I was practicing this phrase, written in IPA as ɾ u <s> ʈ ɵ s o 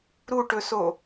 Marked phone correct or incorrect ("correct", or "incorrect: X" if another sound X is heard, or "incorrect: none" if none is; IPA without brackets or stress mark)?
incorrect: none